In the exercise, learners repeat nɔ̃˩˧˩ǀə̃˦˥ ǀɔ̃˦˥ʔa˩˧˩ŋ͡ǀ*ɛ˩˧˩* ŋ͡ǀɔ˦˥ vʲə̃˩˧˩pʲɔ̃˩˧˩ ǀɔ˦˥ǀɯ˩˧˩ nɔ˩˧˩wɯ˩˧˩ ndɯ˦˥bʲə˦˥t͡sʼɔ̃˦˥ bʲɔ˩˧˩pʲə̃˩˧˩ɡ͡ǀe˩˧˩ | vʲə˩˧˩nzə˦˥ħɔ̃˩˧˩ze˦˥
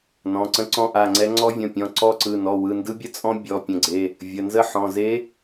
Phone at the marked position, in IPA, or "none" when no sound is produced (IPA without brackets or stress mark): ɛ˦˥